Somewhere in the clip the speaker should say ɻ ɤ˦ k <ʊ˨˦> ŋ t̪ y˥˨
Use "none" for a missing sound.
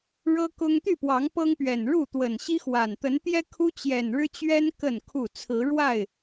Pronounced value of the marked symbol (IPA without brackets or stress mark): ʊ˦